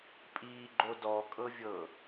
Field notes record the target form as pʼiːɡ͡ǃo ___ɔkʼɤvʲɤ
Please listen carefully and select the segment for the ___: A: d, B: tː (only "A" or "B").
A